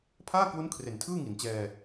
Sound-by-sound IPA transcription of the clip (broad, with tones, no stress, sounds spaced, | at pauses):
pʰ aː˥˩ k w u˦˥ n kʰ r e˨˩ n tʰ ɯː˥˩ ŋ i˩˦ n t͡ɕ ɛː˧